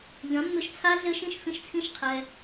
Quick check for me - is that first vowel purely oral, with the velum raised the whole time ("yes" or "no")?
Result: no